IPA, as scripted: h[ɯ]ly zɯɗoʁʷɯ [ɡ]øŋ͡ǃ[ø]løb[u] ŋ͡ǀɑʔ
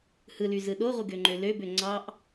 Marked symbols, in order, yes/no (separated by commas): yes, yes, yes, no